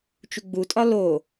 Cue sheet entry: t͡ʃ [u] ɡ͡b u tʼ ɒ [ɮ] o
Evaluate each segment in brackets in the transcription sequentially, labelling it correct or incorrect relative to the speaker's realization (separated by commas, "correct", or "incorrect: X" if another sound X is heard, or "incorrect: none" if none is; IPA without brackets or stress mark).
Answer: correct, incorrect: l